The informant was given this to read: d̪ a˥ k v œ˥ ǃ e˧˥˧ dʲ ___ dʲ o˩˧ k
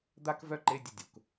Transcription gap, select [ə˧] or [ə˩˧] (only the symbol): ə˧